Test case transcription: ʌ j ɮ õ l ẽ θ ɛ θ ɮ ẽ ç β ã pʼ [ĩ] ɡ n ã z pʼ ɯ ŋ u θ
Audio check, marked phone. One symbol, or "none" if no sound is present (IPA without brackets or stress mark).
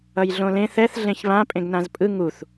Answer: ẽ